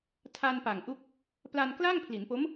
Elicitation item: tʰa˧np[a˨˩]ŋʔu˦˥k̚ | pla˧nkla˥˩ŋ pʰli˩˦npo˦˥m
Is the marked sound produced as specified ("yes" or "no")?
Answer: yes